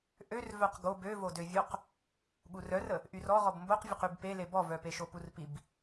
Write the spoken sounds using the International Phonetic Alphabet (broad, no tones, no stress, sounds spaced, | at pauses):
ʔ ø r v œ q ɡ o b ø v o d ø vʲ o q | ɠ u r œ r ə | ʔ y r ɔ ʁ ɔ b m b o q vʲ ə q y b p e l e b ɔ v œ p e ʃ o p u r p i b